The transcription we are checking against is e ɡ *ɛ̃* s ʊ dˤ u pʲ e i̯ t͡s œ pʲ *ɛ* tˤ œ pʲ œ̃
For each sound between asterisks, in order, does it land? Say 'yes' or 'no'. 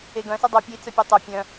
no, no

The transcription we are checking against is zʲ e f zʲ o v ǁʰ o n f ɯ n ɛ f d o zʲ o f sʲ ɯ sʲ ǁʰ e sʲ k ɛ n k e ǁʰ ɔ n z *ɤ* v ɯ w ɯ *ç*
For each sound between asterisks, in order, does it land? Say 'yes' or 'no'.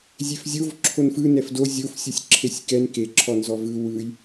no, no

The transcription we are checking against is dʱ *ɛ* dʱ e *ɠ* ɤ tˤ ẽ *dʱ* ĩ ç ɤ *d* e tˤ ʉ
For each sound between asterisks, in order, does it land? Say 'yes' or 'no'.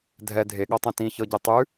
yes, yes, no, no

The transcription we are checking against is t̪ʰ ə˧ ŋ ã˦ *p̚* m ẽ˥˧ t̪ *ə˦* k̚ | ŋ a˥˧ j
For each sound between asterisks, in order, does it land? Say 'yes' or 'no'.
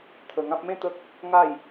yes, yes

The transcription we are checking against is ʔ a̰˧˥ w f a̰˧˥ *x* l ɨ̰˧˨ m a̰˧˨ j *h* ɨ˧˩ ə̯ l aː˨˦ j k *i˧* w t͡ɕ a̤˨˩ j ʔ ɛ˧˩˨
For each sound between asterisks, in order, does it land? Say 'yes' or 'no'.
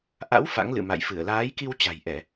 no, no, yes

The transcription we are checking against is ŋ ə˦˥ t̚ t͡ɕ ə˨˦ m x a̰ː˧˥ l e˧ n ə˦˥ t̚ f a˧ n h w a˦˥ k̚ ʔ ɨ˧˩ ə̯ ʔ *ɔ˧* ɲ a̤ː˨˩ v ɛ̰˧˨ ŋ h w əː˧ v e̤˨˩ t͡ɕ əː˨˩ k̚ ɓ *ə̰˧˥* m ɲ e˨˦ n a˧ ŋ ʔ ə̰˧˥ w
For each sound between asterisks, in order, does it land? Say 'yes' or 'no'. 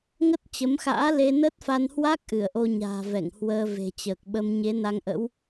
no, no

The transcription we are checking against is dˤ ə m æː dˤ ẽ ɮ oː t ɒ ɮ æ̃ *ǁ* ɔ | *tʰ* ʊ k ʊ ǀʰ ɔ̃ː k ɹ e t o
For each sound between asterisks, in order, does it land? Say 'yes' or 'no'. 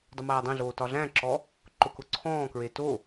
yes, no

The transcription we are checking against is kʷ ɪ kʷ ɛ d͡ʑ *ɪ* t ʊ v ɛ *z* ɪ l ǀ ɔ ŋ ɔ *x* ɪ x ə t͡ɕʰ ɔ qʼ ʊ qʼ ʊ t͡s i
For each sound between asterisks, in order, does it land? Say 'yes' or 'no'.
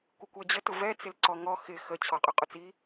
no, no, yes

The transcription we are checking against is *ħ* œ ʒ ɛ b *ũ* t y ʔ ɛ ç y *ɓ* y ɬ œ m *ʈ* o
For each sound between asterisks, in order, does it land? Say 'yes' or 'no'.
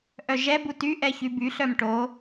no, no, no, yes

